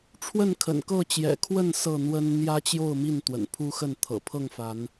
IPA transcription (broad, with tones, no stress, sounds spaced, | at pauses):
ʈ͡ʂʰ w ə˥˨ n kʰ ə̰˨˩ n k ɤ˥˨ t͡ɕ j ɛ̰˨˩ kʰ w ə˥˨ n s ɤ˥˨ n̪ w ə˦ n n̪ j ä˦ t͡ɕ j o˥˨ ʊ̯ m i˥˨ n t̪ w ə̰˨˩ n pʰ u˦ x ə˥˨ n t̪ʰ ɤ̰˨˩ pʰ ɤ˥˨ ŋ f a˨˦ n